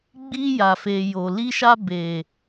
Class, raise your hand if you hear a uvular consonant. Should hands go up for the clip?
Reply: no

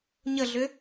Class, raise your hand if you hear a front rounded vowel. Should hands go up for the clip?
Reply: yes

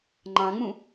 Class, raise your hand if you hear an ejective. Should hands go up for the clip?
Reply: no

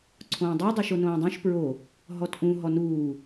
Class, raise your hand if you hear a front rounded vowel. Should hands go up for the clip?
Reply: yes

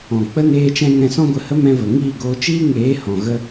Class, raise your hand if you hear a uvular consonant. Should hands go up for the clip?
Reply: no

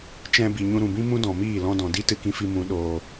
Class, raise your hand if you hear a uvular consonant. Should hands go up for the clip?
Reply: no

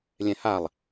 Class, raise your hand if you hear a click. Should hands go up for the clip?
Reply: no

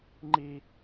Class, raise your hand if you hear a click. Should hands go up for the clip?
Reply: yes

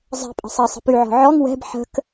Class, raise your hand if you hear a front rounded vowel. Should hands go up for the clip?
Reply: yes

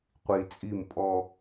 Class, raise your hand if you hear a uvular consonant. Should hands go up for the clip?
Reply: yes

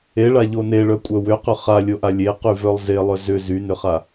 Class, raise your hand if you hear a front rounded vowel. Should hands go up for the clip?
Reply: yes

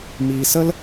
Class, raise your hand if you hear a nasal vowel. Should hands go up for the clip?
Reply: no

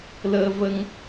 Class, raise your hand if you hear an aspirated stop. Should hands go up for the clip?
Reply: no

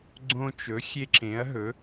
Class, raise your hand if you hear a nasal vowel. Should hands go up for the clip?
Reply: yes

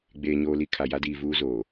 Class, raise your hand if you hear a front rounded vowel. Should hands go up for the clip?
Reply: no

